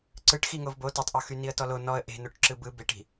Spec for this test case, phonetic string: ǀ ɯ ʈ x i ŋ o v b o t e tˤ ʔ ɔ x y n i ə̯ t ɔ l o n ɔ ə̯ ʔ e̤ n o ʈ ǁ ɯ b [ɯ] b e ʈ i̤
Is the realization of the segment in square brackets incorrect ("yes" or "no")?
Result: no